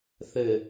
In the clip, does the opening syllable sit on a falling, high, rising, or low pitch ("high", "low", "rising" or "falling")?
low